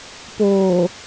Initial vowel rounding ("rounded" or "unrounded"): rounded